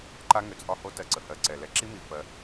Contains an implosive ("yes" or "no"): no